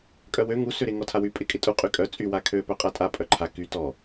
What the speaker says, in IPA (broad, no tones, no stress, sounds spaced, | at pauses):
kʼ œ w ø ŋ u s ø ɾ ɪ ŋ ɔ tʰ a w y pʼ ɪ kʼ ɪ tʼ u qʼ y kʼ œ t͡sʼ y w a kʰ ø p œ qʼ a tʼ a pʼ œ ǃʰ a k y t ɔ